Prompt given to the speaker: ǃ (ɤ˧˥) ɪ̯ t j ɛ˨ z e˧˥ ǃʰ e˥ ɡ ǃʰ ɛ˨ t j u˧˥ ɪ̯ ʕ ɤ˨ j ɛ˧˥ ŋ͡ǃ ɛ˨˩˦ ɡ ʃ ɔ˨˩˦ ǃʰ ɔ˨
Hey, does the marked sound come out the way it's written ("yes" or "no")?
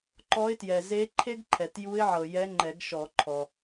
no